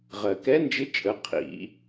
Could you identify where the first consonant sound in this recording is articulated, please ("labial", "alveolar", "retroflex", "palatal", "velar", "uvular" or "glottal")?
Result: uvular